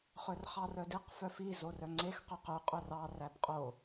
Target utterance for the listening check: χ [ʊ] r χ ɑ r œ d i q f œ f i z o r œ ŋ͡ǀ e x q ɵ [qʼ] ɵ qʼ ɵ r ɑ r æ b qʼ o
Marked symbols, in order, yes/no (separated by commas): no, no